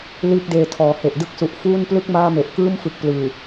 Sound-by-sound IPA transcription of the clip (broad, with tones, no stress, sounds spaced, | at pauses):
l iː˥˩ k̚ d eː˧ tʰ ɔː˩˦ h e˨˩ ʔ d ɯ˥˩ k̚ s u˨˩ ʔ f uː˥˩ n p l ɯ˥˩ k̚ m aː˥˩ m e˨˩ ʔ k ɯː˥˩ m f ɯ˨˩ k̚ p l ɯː˨˩